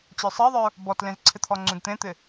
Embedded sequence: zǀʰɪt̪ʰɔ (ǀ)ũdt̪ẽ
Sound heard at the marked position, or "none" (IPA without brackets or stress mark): ŋ͡ǀ